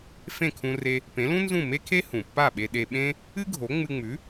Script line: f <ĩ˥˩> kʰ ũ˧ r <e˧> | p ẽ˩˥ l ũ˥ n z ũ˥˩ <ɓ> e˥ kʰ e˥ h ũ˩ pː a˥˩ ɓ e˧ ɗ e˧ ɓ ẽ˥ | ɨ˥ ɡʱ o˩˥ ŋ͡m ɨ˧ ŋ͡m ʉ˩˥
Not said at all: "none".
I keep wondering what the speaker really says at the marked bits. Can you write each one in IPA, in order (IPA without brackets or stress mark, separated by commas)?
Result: ẽ˥˩, e˧, m